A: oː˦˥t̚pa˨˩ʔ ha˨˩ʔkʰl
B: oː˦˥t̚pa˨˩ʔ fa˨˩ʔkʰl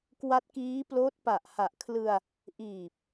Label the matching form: A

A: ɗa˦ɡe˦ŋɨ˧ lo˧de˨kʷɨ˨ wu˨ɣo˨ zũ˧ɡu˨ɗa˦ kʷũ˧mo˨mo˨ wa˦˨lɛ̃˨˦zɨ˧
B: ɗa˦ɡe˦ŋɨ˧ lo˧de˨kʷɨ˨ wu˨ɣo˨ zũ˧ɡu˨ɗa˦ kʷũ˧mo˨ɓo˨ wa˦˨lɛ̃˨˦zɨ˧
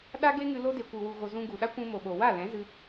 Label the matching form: B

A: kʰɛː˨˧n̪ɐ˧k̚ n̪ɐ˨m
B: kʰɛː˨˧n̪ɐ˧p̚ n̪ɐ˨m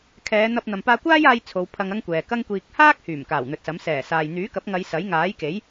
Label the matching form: B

